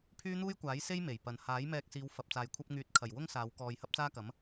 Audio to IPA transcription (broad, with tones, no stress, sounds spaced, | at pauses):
pʰ yː˥ n̪ uː˥ j kʷ aː˨˥ j s e˥ j m e˨˩ j p ɐ˨ n h aː˨˥ j m ɛː˧ k̚ s iː˨˧ w f ɐ˨ p̚ t͡s aː˨ j kʷʰ ɐ˥ p̚ ŋ yː˨˥ t̚ kʰ ɐ˨˩ j w ʊ˥ ŋ s aː˨˧ w k ɔː˧ j h ɐ˥ p̚ t͡s aː˥ k ɐ˨˥ m